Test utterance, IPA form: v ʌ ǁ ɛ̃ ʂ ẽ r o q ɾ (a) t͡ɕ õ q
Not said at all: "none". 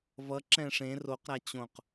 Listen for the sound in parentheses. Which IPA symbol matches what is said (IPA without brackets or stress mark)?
a